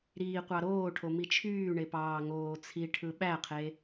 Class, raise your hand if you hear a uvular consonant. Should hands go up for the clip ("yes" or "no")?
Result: yes